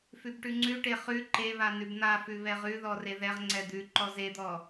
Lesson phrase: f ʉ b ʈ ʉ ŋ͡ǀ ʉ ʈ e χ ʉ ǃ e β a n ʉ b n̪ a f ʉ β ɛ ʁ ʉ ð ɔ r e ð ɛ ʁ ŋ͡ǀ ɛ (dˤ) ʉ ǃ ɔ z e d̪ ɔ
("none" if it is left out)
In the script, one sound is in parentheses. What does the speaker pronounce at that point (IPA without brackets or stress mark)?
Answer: d̪